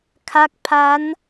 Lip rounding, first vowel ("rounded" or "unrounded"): unrounded